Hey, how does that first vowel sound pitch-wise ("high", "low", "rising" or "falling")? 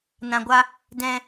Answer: low